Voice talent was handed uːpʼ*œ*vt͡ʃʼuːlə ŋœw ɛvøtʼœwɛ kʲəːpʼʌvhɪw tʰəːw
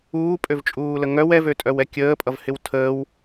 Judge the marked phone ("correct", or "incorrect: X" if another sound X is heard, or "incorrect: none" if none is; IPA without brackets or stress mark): incorrect: ø